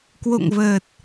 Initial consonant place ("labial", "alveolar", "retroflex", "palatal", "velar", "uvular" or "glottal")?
velar